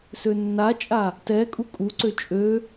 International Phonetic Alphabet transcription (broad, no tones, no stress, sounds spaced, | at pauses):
s ø nː a t͡ʃʼ a | t ɛ kʼ u kʼ u ǀ ø t͡ʃʼ ø